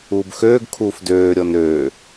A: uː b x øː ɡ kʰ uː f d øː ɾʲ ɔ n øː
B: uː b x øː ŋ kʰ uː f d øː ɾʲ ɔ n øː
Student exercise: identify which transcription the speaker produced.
A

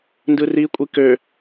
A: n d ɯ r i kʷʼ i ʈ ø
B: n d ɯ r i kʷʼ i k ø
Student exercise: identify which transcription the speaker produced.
B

